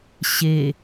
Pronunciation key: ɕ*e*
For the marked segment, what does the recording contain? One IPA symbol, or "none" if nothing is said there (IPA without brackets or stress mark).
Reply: e